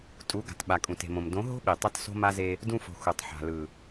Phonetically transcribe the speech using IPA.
tʼ u˨˦ ɡ a̤˨ t ɓ a˨ kʼ ũ˨ t e̤˨ m õ˨ m d õ˨˦ ɦ o̤˦ ɓ i˨ tˤ ʌ˧ t s o̤˦ m a˦ z e˧ | d ũ˧ f o̤˨ x u˨ tˤ ħ a̤˨ l ɯ˨

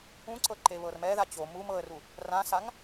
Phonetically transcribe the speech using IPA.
ũ ǀ ɤ ǃ e β ɤ r m ɛ ð a t͡ɕ o m u m ɤ ə̯ r u | r ã s a ŋ

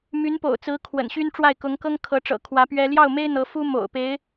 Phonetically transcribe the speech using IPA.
m y˧˥ n p o̰˨˩ ʊ̯ t͡s ɹ̩˧˥ kʰ w ə̰˨˩ n ɕ y˥ n ʈ͡ʂ w a˥˩ ɪ̯ k ʊ˧˥ ŋ k ɤ˥ ŋ kʰ ɤ˧˥ ʈ͡ʂ ɤ̰˨˩ kʰ w ä˧˥ p ɥ ɛ˥ l j ɑ˥˩ ʊ̯ m e˥ ɪ̯ n̪ ɤ˧˥ f u˥ m o̰˨˩ ʊ̯ p e˧˥ ɪ̯

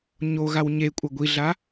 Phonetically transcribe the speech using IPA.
ɲ o ɣ a w ɲ e kʷʼ ɐ ɡʷ i ɮ a

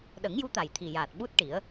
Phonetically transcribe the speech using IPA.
ɗ ə˨˩˦ ŋ j u˧˥ t̪ a˨˩ j t̪ʰ i˨˩ j aː˨˩ t̚ ɓ u˦˥ t̚ ʈ i˨˩˦ ə̯

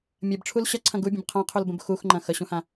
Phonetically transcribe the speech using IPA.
mʲ ɐ b ʈ͡ʂʰ u l ɕ ɐ ǀʰ ɐ̃ ɡ u bʲ ə̃ b qʰ ã qʰ u l b ə̃ b x u x ŋ͡ǃ ɐ̃ x ə ɕ ũ h ã

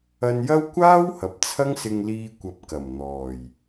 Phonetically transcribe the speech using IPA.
ɐ˧ n j ɐ˥ w kʷ aː˥ w h ɐ˨ p̚ t͡sʰ ɐ˥ ŋ s ɪ˧ ŋ l iː˧ kʷ ɐ˨˥ p̚ k ɐ˨˩ m n̪ ɔː˨˩ j

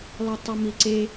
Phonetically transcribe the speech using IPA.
lˠ i tˤ ɤ m i ǀ e

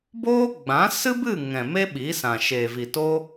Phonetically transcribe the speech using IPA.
b oː˦ ɡ͡b ã˨˦ s ɨ˦ b ɨ˦˨ ŋ ɛ̃˨ m e˦ ɓ iː˨˦ s ã˨ ʃ e˨ v i˨ t o˦

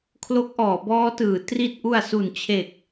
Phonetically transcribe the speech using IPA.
kʰ l o˦˥ k̚ ʔ ɔː˩˦ b ɔː˦˥ t ɯː˩˦ t r i˨˩ t̚ ʔ u˨˩ a̯ s u˨˩ n t͡ɕʰ e˨˩ k̚

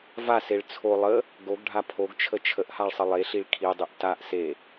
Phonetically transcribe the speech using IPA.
v a s e ɭ t͡sʰ o lˠ ə | ɡ o ɡ ɖʱ a pʰ o ɡ t͡ʃʰ ə t͡ʃʰ ə ʔ h a ɭ sˤ ə lˠ e ɬ i ɭ kʰ i dˤ i ʔ t a ʔ s e

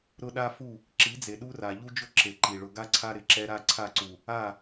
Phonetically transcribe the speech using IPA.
ɾ ʊ˦ ɗ a˦ f u˦˨ | ǁ i˨˦ d͡z e˨ ɗ u˦ r a˨ ʎ u˦ d͡ʒ ʊ˦ ǁ e˨ ǃ i˨ ɭ ʊ˦ ɡ a˦ ǀʰ a˦ ɾ ɪ˨ ǁ ɛ˦ ɾ a˦ ǀʰ a˦˨ ǀ u˨ | a˦˨

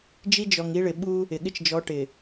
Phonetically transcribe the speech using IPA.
d͡ʒ i˦ d͡ʒ ɔ˨ ŋ i˦ ɭ ɪ˨ ɓ u˦ | ɪ˨ ɠ ɪ˦ t͡ʃ d͡ʒ ɔ˨˦ ʈ ɪ˨

